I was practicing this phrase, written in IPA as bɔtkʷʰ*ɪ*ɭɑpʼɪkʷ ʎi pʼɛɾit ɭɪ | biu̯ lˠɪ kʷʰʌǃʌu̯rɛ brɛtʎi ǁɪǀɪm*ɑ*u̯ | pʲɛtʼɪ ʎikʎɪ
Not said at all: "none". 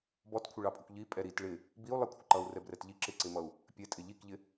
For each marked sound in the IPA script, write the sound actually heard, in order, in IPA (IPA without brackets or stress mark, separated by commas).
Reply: ɪ, ʌ